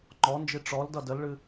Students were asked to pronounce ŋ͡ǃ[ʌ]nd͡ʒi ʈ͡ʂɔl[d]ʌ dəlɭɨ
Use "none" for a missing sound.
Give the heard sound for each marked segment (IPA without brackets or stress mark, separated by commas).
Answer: ɔ, d